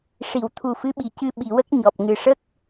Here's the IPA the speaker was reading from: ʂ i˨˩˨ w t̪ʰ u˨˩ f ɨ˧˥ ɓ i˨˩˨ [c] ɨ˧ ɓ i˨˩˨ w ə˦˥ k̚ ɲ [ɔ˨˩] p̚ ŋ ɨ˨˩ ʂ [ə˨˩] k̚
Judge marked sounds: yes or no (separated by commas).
yes, yes, no